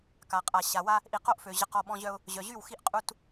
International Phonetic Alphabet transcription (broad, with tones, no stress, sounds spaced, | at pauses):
k a˨ qʼ a˨ ɕ a˨ w a˦ | ʔ i˨ q o˦ ʔ f ø˨ ʑ ə˨ q ɔ˨ ɓ ɔ̃˦ ʑ œ˦ ʊ̯ | ʑ œ˨ ʑ y˦˨ w x i˦ ʔ qʼ u˦ t